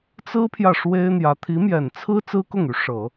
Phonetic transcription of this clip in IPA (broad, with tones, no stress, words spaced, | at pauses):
t͡sɹ̩˥pʰjä˨ ʂwe˥ɪ̯n̪jä˧˥ t̪ʰi˧˥mjɛ˨˩nt͡sʰɹ̩˥ t͡sɹ̩˥kʊ˥˩ŋy˧˥ ʂɤ˨˩˦